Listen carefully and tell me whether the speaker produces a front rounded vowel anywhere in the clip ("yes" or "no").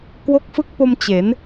no